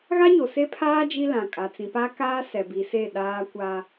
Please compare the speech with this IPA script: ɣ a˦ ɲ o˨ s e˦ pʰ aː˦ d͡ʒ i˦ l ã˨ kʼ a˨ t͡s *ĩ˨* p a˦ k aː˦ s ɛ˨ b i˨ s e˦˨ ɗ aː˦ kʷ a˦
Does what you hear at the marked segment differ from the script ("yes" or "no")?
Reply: no